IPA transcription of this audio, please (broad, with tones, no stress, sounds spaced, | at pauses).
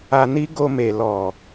a˧ n i˦ ɡ o˧ m e˨ l ɔ˨